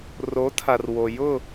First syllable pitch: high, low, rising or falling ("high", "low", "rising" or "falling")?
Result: rising